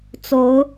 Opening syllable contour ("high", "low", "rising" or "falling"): rising